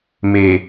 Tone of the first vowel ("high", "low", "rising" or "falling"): low